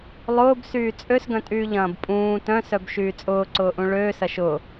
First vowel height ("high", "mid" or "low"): high